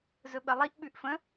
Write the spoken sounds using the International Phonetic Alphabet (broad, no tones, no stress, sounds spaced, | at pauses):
z ɵ ɓ ə lˠ i ʔ ɓ ʉ ʔ f ə̃